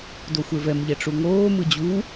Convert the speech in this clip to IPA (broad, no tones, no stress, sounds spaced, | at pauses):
d o xʷ e v ɛ m ʎ ɛ ʈ͡ʂ u ŋ oː m ɯ d͡ʑ u